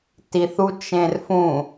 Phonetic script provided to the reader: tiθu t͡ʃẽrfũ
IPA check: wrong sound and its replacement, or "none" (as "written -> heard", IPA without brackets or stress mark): none